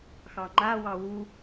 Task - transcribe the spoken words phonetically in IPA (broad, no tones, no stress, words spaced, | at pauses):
xɑŋ͡ǃawɑ wu